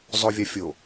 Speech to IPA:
zˤ o vʲ a fʲ o

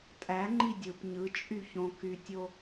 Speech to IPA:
tʼ æ ŋ͡ǃ i dʲ ɯ p ɲ ɯ t͡ʃʼ y ç õ k y tʲ o

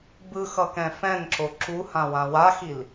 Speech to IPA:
b ɯ x ʌ k ɛ̃ f ɛ̃ n ǁ o ǁ u h ã w ã w a x i l

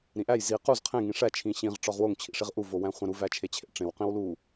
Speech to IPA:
ɾ ĩ ʔ æ j z i q u z qʰ ẽ ŋ ĩ ʂ æ t͡ʃʰ ĩ ɕ ĩ ʁ ʈ͡ʂ ɒ ʁ w o ŋ t͡ɕʰ ḭ ʂ i ʁ ʔ u v o w æ̃ χʷ æ̃ ɾ u v æ t͡ʃʰ e t͡ɕʰ ḛ ʈ͡ʂ ẽ w q ĩ w l u

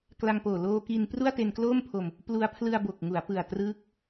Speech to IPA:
k l a˧ ŋ p oː˨˩ l oː˧ k i˧ n p r u˥˩ a̯ t e˧ n k l oː˥˩ m pʰ o˧ m | p l u˧ a̯ pʰ l ɯ˧ a̯ b o˨˩ k̚ ŋ u˩˦ a̯ p ɯ˨˩ a̯ t r ɯː˦˥ k̚

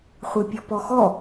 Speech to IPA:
χʷ e pʲ ɔ p ɔ x ɔ

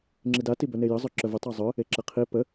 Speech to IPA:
ŋ͡ǁ i d a t i b œ n e j ə zˤ œ ǁ œ v ə tˤ œ zˤ œ | e ǁ ə qʰ i p ə

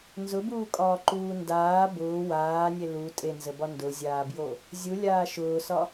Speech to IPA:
n z ʊ b uː kʼ ɒː ǃ uː n d aː b ʊː w aː nʲ e l u tʼ e n z ə b ɒ n d ʊ zʲ aː b j o | zʲ u lʲ aː ʃ ʊː s ɒ

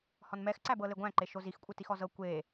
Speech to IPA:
h ɔ n m ɛ x ǀ æ b ɤ l e ɡʷ æ̃ ǃ e ʃ o z i x kʷʼ ɯ t i x ɔ z ɤ kʷ e

